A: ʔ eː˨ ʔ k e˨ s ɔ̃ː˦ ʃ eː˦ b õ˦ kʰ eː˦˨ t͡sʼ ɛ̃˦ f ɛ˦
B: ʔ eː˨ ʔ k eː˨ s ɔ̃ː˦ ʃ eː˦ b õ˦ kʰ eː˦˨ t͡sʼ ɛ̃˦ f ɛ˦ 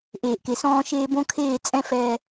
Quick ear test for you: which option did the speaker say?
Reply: A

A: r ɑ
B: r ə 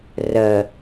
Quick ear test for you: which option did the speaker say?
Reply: B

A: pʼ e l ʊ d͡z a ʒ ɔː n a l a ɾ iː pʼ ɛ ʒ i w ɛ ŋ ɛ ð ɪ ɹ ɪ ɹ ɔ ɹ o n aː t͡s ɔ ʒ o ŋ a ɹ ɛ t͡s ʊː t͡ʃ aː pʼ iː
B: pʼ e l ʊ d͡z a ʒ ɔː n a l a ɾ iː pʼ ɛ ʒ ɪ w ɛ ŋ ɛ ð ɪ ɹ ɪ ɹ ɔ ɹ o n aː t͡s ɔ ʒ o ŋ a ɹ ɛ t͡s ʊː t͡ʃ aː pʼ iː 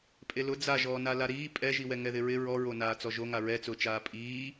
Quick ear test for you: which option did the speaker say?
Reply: A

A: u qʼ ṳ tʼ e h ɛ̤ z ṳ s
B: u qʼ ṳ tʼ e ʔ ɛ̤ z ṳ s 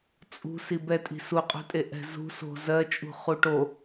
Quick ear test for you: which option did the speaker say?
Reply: B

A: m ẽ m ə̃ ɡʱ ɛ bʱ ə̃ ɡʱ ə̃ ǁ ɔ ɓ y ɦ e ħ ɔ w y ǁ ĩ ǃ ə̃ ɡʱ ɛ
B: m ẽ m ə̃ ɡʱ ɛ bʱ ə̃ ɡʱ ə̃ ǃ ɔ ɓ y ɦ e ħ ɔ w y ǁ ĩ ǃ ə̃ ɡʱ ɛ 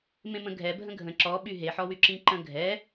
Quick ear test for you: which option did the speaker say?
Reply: A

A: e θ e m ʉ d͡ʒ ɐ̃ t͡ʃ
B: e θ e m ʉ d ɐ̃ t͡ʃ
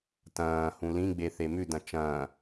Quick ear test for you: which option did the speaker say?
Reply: B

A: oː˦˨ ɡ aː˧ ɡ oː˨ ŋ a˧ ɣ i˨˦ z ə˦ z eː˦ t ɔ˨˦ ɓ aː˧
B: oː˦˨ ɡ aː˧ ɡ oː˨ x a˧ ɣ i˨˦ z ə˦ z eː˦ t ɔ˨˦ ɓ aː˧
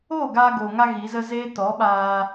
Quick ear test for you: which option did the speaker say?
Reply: A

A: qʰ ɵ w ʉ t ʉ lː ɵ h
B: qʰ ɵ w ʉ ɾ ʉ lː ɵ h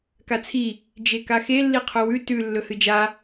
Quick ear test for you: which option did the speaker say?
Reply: A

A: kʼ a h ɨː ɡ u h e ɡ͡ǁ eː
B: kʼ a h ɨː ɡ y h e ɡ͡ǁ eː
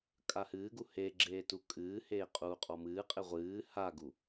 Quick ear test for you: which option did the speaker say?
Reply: A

